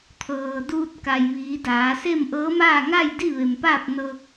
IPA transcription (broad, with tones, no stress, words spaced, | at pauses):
t̪ʰɤː˩duː˧t̚ ka˩jʋiː˩˧daː˩˧se˥˨m ʔɤː˧˥maː˥˨ ŋa˥˨j di˥˨ʋe˩mpaː˥˨p̚ nɤː˧k̚